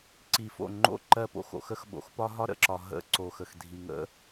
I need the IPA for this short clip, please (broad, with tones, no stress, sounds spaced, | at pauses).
ǀ i˨ f o̰˦˨ ŋ͡ǃ o̰˦˨ ǃ ɜ˦ p o̰˦ x o̰˨ x ə˦ x ɓ o̰˨ x p ɒ˦ ɦ ɒ˦ ɾ ə̰˨ ǁ ɒ˨ ɦ ə̰˦ ǀ o˨ x ə˨ x dʱ i˨ ŋ ə̰˦